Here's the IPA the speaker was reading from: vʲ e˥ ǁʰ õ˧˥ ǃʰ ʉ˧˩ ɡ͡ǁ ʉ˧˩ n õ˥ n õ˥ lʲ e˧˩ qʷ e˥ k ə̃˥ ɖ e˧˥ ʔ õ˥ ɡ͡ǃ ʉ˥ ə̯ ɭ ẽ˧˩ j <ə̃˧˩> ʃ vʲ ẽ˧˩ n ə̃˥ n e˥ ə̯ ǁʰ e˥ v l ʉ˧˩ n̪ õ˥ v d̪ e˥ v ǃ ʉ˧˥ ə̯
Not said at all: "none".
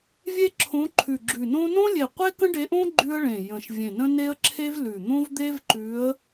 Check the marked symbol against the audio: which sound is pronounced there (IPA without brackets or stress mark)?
ə̃˧˩